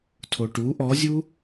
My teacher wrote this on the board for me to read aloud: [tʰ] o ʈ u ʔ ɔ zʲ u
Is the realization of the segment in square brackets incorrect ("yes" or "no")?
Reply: no